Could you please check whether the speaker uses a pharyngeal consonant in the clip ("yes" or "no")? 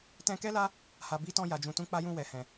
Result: no